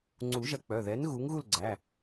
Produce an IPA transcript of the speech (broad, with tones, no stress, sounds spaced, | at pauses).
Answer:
ŋ͡ǀ u˨˩˦ ʒ ɐ˨˥ k͡p œ˩˧˩ ð ɛ˨˥ n ɣ u˨˥ ŋ ɣ u˥˨ l ɡ͡ǀ æ˩˧˩